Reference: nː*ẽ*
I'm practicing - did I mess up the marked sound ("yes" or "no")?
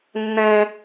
no